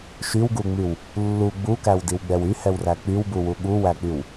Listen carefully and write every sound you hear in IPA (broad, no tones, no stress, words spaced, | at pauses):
ʃywɡuŋ͡myw | lːu ɡ͡bukæwdiwɡ͡bɛw yhɛwræ k͡pywbuwu ɠuwæk͡pyw